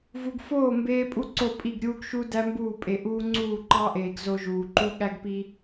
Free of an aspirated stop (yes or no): yes